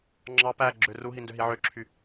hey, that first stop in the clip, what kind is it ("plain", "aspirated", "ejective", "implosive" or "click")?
click